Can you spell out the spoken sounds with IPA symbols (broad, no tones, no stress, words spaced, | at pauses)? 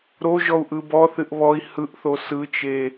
ɾoʒɔu̯ʔɯ bɔθɨʔ βɔi̯ hɯʔθo sɯt͡ʃe